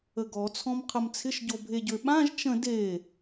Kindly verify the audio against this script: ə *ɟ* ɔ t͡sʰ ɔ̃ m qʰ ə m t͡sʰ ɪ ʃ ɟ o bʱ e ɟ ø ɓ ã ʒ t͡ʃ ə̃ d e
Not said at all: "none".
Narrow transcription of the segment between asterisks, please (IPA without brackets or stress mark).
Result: ɡ